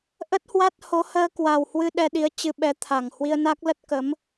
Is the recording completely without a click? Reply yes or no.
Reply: yes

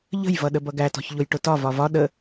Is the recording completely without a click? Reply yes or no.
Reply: yes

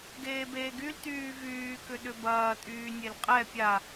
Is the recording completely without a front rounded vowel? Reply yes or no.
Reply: no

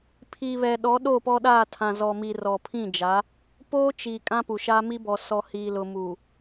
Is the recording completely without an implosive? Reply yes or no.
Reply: no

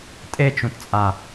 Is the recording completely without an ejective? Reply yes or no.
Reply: no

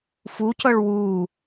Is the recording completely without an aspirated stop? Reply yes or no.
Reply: yes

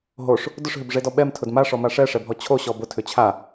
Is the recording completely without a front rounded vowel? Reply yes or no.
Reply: no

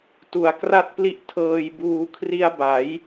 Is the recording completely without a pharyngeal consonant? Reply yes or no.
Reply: yes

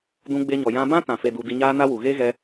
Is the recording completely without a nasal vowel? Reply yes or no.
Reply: no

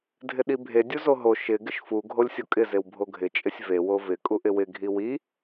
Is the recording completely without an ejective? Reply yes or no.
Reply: no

